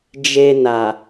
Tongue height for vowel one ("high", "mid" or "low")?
mid